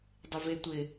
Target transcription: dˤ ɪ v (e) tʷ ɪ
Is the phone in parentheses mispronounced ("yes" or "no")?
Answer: no